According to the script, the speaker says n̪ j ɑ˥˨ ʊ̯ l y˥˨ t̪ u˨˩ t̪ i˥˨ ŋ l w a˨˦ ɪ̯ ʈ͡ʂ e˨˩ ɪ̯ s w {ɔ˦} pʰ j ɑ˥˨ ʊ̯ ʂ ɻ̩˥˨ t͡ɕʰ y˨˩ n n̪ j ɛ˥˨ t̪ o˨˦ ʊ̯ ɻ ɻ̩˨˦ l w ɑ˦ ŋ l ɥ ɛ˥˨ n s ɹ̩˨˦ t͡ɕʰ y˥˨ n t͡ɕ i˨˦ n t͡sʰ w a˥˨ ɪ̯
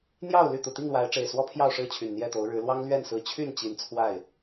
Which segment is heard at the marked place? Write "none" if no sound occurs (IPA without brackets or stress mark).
ɔ˦